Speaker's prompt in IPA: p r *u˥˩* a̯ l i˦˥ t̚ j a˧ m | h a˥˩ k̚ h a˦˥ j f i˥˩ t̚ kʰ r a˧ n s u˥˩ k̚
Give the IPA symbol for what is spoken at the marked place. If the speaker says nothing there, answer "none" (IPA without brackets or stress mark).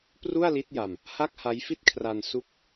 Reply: u˥˩